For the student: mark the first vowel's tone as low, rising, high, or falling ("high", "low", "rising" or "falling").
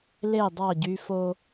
falling